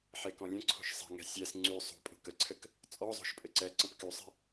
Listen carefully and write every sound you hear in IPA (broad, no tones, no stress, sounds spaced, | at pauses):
ħ e k ɔ̃ lʲ ə̃ ǀʰ o̤ ʃ sˤ ɛ̤ ŋ ɛ̤ sʲ ɛ s ŋ͡ǀ y sˤ o̤ pʼ o̤ k ə ǀʰ ɘ k | t͡sʼ ɔ zˤ o̤ ʃ pʼ ɘ ǀ ɛ ǀ ə̃ p k y sˤ ɛ̤